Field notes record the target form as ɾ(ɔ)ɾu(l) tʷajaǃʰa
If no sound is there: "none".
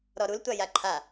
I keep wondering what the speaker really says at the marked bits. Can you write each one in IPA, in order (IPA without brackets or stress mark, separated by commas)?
ɔ, l